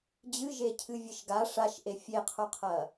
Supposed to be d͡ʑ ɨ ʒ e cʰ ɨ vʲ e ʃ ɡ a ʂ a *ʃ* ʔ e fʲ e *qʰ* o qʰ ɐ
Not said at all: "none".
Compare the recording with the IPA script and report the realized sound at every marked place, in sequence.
ʃ, qʰ

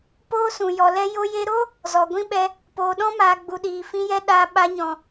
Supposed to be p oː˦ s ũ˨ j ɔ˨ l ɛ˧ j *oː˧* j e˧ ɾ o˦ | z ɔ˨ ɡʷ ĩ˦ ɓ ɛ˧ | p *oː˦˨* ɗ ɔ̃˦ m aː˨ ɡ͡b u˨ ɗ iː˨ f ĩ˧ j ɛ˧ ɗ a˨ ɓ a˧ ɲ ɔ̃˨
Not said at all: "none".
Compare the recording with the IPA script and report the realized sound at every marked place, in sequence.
o˧, oː˨

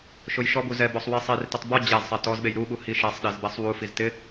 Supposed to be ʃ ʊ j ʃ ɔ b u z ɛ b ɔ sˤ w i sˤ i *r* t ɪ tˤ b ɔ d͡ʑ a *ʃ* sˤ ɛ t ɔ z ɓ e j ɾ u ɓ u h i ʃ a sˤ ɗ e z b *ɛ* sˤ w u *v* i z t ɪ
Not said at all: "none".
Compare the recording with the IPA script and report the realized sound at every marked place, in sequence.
r, z, ɛ, f

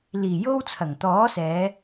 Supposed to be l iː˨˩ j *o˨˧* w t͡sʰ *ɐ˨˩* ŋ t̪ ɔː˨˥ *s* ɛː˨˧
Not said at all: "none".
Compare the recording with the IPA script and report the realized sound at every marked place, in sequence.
o˧, ɐ˨˩, s

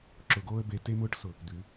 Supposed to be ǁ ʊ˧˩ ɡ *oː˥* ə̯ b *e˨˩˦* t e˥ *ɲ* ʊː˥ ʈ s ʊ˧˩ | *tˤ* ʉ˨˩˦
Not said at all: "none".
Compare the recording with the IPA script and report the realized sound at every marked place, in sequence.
oː˥, e˥, m, d̪

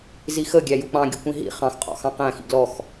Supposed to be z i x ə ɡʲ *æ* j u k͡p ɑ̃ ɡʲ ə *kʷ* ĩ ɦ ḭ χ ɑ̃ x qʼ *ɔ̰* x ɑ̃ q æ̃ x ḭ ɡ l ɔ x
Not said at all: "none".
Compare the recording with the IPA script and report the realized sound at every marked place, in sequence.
æ, kʷ, ɔ̰

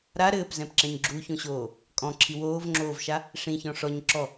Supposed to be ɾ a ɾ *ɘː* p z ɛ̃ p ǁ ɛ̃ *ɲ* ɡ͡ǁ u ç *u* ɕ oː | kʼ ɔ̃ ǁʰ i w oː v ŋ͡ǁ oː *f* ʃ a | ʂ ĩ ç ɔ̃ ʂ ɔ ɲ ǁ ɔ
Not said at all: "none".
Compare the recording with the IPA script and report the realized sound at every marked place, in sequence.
ɘː, ɲ, ũ, v

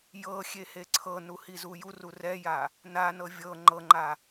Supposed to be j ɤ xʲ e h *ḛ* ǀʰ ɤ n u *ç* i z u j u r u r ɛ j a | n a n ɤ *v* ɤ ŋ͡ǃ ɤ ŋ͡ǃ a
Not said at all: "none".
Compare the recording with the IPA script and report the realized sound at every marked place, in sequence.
e, h, vʲ

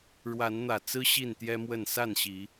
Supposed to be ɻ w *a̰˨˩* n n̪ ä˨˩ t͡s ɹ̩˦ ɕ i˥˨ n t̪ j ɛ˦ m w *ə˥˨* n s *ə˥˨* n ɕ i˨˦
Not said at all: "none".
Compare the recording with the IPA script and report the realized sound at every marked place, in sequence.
a˨˦, ə˥˨, a˥˨

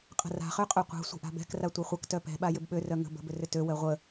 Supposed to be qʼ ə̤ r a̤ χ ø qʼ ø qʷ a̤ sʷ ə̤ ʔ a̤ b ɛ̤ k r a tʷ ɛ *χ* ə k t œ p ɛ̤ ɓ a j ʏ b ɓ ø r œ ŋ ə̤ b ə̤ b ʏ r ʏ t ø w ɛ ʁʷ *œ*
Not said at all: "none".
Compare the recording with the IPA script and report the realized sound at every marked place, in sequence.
χʷ, ə

